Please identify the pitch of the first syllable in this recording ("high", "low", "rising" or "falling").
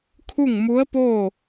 falling